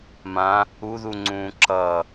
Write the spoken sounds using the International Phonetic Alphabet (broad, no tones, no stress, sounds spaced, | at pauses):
m ã | u ð u ŋ͡ǀ ũː ǁ ʌ